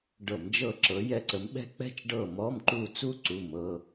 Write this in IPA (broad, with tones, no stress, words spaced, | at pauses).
ɖɤ˧˩˧md͡ʒɤ˦˨ǁɤ˨˦ jɛ˦˨ǀə˨˦m ɓɛ̤˥k͡pɛ̤˥t͡ʃ ɖɤ˦˨mɔ˧˥˧mǃu˦˨t͡su˥ ǀu˧˥˧mɤ˧˥˧